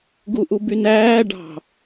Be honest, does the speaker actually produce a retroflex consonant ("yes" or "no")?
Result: yes